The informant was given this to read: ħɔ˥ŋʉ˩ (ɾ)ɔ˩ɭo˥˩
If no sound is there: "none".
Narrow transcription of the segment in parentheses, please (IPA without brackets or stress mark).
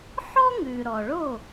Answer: ɾ